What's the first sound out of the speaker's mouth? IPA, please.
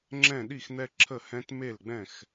ŋ͡ǁ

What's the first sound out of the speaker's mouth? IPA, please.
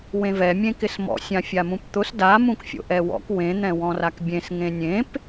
w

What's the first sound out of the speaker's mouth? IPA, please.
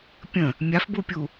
pʲ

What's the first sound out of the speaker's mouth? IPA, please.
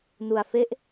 n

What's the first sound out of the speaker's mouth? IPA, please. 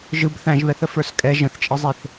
ʒ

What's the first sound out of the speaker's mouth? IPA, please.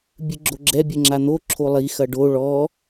bʲ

